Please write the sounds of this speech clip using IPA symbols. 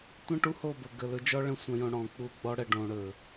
tʷə̃˦ ʈu˦ho˦˨bə˨ ɡə˨lɵ˧d͡ʒɔ˦ ɭə̃˧sʷə̃˨jõ˨ ɽɔ̃˨k͡pu˧ ɡ͡bɔ˧ɽə˨ɖõ˨ ɽɵ˨

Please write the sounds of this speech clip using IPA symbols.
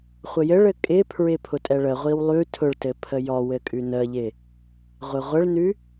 χʷəjɘɭɘ kʼɪpʰɹɪ pʰʊtʼɛɭəʁʷiw lˠʉ tʰʊɭtɘ pʰəjɔwɘ kʼʉnəʎɪ | ʁʷɪʁʷəɭnʉ

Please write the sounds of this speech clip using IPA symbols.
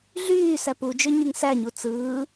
ɮyː sæpud͡ʒø ɲyŋsæɲu t͡sɯː

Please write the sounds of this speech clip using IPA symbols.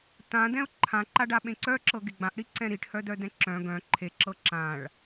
tã dɛ̃ʊ̯ǃʰãǃaɖa ɓẽǀœǁɤ ɡeɡ͡bãʔɽiǀɛ̃ ɾiʈhœdœdɛ̃ ǁœ̃ ɡœ̃ ǃʰeǁɤ ǁãɭ

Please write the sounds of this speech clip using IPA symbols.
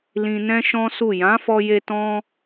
lĩ˧nɛ̃˦ʃɔ̃˦su˦˨ jã˨˦fɔ˧je˧ tɔ̃˦

